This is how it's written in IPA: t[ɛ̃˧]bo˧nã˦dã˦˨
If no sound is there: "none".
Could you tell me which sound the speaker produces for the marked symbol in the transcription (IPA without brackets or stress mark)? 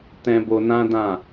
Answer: ɛ̃˧